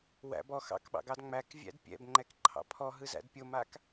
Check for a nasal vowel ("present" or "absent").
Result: absent